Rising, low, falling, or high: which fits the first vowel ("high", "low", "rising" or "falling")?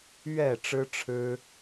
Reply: low